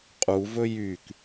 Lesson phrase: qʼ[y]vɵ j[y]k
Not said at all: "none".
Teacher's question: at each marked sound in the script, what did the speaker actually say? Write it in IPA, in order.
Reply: u, y

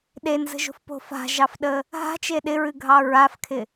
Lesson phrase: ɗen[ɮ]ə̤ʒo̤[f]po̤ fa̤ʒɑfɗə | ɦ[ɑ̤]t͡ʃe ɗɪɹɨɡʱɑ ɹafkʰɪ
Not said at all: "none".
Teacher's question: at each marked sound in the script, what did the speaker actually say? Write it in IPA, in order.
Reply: z, f, a̤

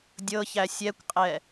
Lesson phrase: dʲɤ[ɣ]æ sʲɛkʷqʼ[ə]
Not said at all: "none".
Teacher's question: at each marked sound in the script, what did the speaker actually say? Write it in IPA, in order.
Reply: ç, ɛ

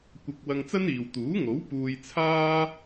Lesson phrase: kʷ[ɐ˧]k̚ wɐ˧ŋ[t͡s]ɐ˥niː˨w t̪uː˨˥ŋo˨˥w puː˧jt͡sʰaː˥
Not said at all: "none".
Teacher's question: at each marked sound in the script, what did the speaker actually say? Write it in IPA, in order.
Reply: ɐ˧, t͡s

